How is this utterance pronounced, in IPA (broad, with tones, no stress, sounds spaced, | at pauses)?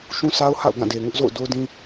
ʃ ũ˦ sʰ a˦ ʊ̯ h a̰˦˨ ʊ̯ ɡ ã˦˨ d e˨ ŋ ʊ˦ ʔ z o̰˦˨ ʊ̯ d o˦ ʊ̯ d ĩ˦